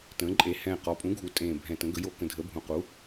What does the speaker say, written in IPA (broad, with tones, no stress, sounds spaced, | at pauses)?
t ə̃ː˩˧ ǃʼ e˩˧ h ɛ̃˨˩ q ɔ˩˧ pʼ ũ˩˥ ɡʱ u˩˧ tʼ ẽː˨˩ bʱ ɛ̃˨˩ t ə̃˩˧ ɡ ə˩˧ j o˨˩ k ə̃˨˩ dʱ ə˩˧ bʱ ũ˨˩ q u˩˥